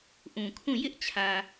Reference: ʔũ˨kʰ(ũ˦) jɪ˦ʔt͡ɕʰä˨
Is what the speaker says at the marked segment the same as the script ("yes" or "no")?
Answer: no